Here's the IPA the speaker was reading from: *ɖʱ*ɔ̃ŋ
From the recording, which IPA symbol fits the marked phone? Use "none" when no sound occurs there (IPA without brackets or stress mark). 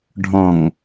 ɖʱ